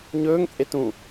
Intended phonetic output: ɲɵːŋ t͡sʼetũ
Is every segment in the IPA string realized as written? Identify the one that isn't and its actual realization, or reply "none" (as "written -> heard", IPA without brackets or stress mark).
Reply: none